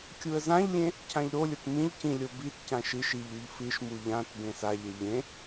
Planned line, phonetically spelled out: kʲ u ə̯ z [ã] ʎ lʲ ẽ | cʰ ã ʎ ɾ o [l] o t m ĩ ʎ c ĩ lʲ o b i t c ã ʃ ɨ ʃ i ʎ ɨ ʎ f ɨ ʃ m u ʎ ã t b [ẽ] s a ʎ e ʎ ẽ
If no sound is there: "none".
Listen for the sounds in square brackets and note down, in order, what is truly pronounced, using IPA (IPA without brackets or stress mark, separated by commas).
ã, lʲ, ẽ